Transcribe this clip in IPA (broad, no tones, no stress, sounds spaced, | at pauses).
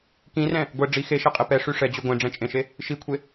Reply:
k ĩ r ɛ̃ | ɡʷ ɛ ɖ͡ʐ i x e ʃ e qʼ e p ɛ ʂ y ʂ ɛ d͡ʑ y ɡʷ ẽ ɖ͡ʐ ɛ̃ t͡ʃʼ ẽ ʃ e | ʃ i kʷʰ e